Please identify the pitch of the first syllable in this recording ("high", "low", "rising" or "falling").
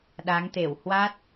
rising